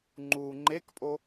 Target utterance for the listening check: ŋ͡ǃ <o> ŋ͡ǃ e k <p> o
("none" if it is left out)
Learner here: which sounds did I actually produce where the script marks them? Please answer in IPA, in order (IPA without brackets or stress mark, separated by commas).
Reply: u, pʼ